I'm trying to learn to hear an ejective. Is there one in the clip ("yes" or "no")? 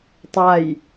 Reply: no